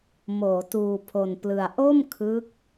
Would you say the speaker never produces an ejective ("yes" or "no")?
yes